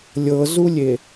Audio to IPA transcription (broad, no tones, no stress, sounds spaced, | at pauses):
lʲ ɤ z u lʲ e